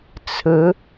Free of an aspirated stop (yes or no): no